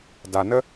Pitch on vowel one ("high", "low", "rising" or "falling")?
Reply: low